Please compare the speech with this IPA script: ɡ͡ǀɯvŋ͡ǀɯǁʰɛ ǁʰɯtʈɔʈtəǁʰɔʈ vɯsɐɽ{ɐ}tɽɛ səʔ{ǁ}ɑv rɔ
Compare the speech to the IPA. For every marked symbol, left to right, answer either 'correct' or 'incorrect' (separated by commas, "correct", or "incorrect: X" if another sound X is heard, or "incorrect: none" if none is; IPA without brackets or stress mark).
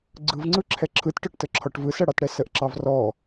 incorrect: ɑ, correct